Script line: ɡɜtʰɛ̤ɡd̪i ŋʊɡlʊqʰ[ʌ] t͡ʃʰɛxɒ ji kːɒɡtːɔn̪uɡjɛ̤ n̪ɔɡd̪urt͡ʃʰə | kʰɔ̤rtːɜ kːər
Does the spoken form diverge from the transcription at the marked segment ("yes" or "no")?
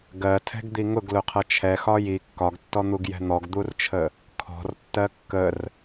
no